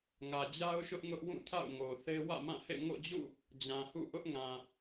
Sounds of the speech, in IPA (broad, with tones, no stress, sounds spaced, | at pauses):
ŋ ä˨ d͡ʑ a˦ ʊ̯ ʃ ʊ˦ ʔ ŋ ʊ˦ ʔ w ũ˦˨ tʰ a̰˦˨ ʊ̯ ŋ o˨ θ e˦ w ä̰˦˨ m ã˦˨ h ḛ˦˨ ŋ o̰˦˨ d͡ʑ ṵ˦˨ | d͡ʑ ã˨ h ṵ˦˨ ʔ ʊ˦ ʔ ŋ ã˨